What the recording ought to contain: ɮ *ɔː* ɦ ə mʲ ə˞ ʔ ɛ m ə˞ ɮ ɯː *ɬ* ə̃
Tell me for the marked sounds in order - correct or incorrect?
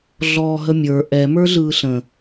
correct, correct

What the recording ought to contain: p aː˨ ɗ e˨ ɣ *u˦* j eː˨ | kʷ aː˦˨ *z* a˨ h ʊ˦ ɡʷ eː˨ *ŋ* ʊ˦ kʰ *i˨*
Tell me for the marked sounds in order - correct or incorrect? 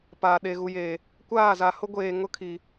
incorrect, correct, correct, correct

